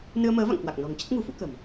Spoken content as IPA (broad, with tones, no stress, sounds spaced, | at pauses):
n ɨ˧ ə̯ m əː˨˦ v a̰˧˨ ŋ k w a˨˩ k̚ n ɔ̤˨˩ ŋ t͡ɕ ə˦˥ t̚ ŋ ṳ˨˩ f ṵ˧˥ k ə̤˨˩ m